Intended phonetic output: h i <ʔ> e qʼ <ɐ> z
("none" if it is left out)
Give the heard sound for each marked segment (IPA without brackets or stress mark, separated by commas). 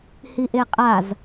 ʔ, a